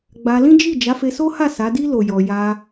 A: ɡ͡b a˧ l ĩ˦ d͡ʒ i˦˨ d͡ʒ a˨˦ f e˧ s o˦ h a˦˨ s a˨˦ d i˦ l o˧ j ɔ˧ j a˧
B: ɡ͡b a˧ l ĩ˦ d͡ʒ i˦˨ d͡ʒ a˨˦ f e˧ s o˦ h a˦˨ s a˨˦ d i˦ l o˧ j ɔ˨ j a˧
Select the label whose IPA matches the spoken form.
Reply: A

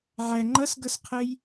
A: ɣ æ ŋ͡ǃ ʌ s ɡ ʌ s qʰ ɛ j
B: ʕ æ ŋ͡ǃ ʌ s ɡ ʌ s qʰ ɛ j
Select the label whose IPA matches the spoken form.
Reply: B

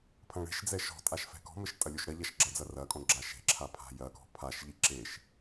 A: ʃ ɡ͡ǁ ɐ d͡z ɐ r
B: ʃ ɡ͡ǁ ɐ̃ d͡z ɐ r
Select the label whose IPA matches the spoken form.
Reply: A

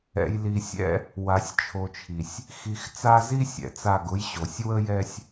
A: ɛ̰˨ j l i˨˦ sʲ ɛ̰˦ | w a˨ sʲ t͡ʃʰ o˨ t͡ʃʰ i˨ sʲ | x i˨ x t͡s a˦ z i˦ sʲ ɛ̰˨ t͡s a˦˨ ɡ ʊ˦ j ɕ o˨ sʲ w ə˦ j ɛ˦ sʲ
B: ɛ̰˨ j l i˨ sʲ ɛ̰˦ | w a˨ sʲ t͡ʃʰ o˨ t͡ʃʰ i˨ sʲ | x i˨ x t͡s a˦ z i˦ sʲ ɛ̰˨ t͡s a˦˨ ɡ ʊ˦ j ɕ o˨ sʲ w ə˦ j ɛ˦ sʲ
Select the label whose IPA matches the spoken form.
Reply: B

